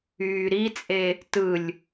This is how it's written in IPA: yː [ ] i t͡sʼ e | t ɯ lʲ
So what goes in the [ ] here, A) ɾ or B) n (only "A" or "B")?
A